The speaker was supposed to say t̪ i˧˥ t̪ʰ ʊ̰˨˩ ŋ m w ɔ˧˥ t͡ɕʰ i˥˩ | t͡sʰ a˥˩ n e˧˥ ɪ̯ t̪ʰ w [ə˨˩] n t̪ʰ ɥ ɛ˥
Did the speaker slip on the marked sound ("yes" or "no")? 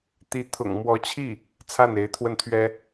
yes